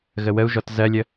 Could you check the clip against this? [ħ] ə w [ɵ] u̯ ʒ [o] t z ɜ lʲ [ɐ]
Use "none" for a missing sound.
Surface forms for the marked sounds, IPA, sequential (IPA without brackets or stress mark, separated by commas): ɣ, ə, ɔ, ə